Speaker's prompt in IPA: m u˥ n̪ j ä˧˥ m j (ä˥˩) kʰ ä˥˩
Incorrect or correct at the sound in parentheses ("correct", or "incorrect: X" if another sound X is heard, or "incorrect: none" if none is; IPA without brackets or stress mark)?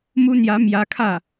incorrect: ä˧˥